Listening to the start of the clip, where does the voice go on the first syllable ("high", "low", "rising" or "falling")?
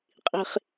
low